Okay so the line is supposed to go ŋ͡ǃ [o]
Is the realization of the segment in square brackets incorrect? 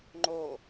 no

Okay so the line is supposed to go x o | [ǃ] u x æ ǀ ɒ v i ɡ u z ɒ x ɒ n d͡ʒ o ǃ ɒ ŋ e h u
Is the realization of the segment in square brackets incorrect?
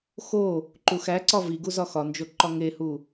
no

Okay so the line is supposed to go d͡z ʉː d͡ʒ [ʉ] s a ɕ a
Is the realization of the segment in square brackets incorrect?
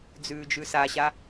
no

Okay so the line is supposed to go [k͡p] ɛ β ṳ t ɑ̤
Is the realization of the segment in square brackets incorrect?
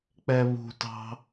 no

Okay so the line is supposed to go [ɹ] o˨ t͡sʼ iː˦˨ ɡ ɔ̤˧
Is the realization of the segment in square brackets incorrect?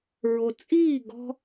no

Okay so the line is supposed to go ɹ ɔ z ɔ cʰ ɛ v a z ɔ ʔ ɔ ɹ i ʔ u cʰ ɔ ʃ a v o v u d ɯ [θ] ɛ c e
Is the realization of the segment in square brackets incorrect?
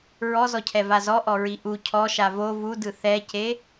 no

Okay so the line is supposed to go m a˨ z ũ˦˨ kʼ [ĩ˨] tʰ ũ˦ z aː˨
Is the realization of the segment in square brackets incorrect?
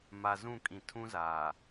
no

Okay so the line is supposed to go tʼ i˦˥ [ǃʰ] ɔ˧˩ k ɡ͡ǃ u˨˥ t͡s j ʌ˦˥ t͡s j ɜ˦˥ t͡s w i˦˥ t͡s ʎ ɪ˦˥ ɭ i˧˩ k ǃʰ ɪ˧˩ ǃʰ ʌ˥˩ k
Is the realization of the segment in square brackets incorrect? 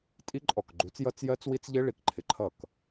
yes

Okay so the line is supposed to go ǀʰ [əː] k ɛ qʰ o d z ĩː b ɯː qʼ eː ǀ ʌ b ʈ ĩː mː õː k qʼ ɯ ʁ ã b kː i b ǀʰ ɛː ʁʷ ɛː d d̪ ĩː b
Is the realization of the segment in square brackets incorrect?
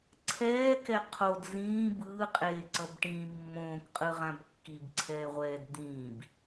yes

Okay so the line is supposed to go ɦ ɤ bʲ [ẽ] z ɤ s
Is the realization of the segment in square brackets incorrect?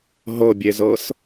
yes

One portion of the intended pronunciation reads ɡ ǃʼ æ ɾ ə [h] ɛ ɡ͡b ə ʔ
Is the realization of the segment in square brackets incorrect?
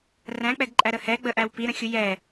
no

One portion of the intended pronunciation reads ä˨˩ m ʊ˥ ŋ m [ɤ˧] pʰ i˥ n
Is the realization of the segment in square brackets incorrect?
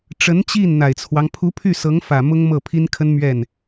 yes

